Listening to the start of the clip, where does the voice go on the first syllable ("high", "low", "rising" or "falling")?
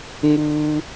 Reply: high